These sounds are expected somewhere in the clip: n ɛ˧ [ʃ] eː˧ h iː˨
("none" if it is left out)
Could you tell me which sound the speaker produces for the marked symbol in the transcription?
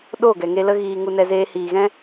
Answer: z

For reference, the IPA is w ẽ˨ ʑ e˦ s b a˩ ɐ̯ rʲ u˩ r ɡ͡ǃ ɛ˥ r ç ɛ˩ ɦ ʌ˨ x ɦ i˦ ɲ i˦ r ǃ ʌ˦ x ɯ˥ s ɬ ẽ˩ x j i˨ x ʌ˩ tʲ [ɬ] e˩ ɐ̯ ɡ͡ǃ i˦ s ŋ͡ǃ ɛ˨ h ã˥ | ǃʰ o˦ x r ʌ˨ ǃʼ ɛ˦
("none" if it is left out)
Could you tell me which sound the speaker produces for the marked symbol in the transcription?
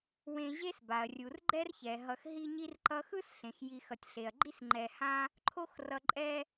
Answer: ɬ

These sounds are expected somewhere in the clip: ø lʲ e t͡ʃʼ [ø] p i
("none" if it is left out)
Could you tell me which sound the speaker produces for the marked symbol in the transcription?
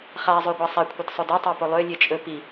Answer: ɵ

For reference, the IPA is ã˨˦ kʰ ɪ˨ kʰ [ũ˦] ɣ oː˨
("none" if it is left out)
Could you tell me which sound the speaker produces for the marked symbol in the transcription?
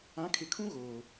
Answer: ũ˦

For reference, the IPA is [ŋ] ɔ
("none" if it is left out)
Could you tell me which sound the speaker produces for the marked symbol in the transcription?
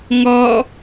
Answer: ŋ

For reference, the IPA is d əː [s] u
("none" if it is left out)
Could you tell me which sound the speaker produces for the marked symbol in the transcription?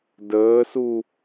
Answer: s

